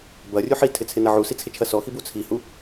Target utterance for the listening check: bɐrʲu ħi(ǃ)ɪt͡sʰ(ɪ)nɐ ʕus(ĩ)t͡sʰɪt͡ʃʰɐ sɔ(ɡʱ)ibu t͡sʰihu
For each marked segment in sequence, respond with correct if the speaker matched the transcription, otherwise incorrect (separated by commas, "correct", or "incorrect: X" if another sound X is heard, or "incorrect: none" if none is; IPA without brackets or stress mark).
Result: incorrect: tʰ, correct, incorrect: i, incorrect: x